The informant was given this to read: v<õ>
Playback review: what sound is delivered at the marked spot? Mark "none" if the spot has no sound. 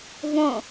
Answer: õ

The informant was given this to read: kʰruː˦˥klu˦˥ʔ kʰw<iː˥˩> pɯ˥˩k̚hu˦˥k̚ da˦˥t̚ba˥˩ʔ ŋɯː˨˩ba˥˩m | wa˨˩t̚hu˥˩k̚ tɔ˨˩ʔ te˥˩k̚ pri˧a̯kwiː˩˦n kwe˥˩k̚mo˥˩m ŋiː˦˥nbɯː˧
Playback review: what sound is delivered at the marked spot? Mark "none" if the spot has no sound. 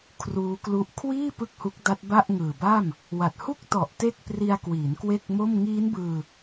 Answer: iː˥˩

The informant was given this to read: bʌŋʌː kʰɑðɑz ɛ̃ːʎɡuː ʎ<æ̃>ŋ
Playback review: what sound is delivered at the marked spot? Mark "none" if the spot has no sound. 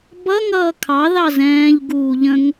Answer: ə̃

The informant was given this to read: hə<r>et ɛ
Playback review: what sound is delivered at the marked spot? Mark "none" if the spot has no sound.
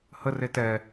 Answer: r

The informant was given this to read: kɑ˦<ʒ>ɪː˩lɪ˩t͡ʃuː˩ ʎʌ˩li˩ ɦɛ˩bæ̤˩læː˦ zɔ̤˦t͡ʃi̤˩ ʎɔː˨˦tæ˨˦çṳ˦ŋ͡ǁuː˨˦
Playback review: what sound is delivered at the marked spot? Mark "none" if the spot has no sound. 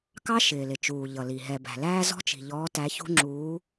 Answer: ʃ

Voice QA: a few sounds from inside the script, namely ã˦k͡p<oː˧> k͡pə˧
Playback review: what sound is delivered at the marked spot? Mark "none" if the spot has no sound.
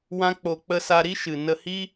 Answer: o˧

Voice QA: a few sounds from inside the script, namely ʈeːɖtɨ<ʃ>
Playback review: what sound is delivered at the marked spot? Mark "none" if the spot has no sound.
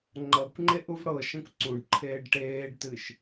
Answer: ʃ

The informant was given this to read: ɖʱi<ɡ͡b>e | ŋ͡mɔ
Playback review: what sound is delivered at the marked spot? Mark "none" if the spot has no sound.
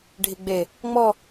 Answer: ɡ͡b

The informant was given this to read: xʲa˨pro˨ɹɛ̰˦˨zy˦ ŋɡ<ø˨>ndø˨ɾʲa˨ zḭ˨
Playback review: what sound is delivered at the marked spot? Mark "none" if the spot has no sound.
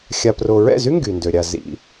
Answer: y˨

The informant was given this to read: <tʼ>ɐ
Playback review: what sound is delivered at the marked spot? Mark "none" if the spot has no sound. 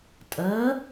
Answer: tʼ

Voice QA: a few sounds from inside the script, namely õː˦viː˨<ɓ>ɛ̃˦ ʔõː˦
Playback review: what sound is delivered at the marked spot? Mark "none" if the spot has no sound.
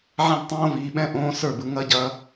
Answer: ɓ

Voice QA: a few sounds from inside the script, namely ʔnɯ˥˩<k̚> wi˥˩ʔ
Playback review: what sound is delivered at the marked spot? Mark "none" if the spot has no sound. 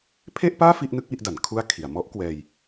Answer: k̚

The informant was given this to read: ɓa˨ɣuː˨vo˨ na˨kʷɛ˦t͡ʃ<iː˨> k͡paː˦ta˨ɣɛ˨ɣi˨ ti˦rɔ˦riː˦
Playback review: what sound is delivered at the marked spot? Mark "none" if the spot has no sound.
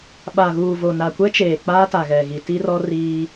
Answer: eː˨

